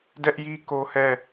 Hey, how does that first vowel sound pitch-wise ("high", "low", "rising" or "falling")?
high